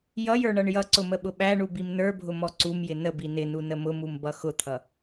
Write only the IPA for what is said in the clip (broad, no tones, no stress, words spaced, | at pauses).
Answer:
jʌjə˞ ɳʌɳjʌǀʊ məɓʊɓæɳu bimnə˞bʱʊ mɔǀumjɪ nəbi nɪnu nəmʊmum bʌxʊt̪ʰʌ